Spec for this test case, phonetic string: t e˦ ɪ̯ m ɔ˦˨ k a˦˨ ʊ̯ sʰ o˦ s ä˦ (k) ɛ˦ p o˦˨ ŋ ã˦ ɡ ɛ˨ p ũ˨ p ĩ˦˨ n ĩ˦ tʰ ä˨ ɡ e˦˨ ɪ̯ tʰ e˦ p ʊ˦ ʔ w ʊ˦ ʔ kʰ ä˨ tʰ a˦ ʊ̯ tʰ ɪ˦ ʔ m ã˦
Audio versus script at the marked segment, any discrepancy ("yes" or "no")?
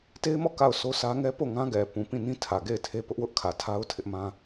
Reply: yes